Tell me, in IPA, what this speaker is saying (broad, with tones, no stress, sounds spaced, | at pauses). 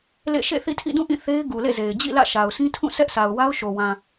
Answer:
l ḛ˦˨ ʃ ḛ˦˨ θ ḭ˦˨ tʰ ḭ˦˨ d ũ˦˨ ʔ ĩ˦˨ θ e˦ ɪ̯ ɡ u˨ l ḛ˦˨ z e˨ ɪ̯ d͡ʑ ḭ˦˨ l ä̰˦˨ ʃ a˨ ʊ̯ sʰ ĩ˦ tʰ ũ˦˨ sʰ ɛ˦ ʔ s a˨ ʊ̯ w a˦ ʊ̯ ʃ o˨ w ã˨